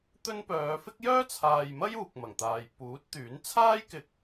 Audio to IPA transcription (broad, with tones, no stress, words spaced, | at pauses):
t̪ɵ˥npœː˨˧ fɪ˥k̚jœː˥t͡sʰaː˨jmɐ˥j uː˨k̚mɐ˨˩ŋt̪aː˨j puː˨˥t̚t̪yː˨˥n t͡sʰaː˥jkɪ˨k̚